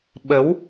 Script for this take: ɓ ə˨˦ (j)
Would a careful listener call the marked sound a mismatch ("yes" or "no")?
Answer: yes